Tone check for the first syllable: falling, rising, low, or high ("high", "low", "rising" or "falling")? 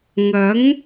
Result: rising